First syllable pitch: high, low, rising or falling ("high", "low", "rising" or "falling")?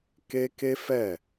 high